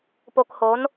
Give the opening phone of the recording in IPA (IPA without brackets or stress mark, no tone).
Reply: p